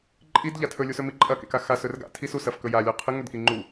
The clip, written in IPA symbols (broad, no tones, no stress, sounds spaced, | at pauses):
ǃʼ i d ʎ a tʰ ɵ lʲ u s ɵ m i ǃʼ ɐ k ḛ k a x a s ɵ r ɡ a̰ tʰ i s u s ɐ f k ɵ j a lʲ o qʰ ɨ ŋ ɵ d k i ŋ͡ǃ u